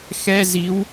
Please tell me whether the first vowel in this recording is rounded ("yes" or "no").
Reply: no